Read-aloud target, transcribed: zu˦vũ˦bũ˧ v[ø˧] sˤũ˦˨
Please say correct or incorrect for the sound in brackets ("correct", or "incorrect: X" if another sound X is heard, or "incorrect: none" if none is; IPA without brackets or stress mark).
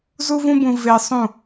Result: incorrect: e˧